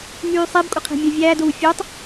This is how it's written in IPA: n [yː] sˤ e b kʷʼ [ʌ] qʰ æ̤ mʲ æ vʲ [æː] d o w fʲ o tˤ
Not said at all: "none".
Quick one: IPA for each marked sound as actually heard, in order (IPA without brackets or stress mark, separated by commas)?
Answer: yː, ʌ, æː